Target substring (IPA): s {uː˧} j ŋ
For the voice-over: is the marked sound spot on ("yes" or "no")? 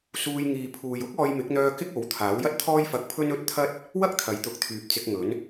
yes